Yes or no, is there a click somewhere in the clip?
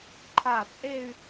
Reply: yes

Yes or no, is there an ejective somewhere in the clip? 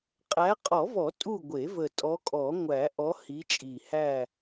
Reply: yes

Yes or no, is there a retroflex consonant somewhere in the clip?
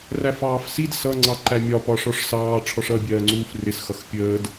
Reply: yes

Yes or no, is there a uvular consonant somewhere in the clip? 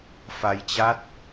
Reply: no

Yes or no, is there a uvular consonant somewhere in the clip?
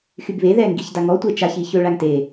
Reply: no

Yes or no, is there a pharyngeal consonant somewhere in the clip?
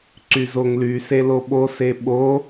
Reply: no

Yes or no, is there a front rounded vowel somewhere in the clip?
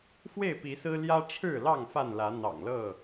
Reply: no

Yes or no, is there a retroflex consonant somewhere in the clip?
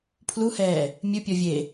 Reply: no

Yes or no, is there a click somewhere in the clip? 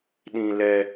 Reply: no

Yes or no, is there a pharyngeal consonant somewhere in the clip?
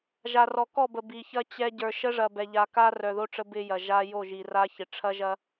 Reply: no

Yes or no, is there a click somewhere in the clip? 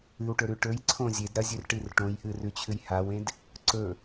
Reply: yes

